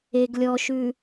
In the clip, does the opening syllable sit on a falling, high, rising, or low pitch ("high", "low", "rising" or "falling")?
low